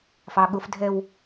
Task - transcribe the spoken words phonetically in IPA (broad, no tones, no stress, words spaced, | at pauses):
fɑɠʊfdʱɛw